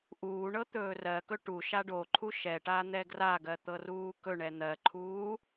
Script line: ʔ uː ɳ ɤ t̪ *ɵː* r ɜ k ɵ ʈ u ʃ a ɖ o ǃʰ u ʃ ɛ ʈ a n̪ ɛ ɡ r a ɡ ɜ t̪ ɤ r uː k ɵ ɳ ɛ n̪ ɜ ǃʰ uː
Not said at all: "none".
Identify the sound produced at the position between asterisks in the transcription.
ɵː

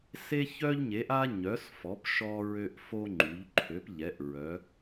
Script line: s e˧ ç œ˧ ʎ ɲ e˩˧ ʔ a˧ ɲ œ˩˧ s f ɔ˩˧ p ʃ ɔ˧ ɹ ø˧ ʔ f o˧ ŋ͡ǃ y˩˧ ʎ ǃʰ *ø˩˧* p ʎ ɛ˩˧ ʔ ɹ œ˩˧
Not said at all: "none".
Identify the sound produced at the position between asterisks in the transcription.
ø˩˧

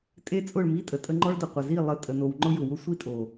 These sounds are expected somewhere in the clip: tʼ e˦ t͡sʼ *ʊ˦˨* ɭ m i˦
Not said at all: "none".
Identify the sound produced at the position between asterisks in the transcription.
ʊ˦˨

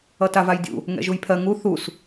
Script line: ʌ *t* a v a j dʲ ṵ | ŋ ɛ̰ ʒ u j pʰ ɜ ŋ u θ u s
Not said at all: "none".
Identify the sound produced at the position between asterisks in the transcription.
t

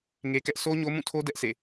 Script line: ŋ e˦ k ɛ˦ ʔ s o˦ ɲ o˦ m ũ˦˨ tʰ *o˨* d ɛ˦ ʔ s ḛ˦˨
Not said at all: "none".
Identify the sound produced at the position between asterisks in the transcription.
o˦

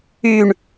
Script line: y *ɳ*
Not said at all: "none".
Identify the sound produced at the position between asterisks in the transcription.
ɳ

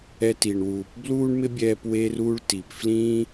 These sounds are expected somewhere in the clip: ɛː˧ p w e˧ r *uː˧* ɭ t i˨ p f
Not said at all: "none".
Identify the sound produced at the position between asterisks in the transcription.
uː˧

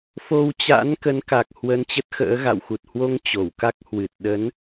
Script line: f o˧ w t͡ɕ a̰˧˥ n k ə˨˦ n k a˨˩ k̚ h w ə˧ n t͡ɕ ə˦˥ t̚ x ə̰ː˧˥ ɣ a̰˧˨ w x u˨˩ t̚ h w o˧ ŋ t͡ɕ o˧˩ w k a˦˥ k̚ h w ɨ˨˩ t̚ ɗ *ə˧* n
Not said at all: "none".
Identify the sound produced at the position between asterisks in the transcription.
ə˨˦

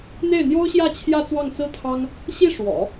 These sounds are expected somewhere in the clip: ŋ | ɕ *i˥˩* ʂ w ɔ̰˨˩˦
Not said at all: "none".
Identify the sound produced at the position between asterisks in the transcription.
i˥˩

